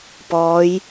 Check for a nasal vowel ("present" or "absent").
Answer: absent